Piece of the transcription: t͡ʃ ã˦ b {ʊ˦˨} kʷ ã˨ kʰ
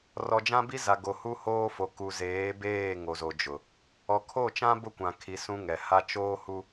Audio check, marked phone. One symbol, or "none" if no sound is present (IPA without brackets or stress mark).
ʊ˦